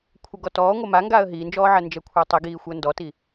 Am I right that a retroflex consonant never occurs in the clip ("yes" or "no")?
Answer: yes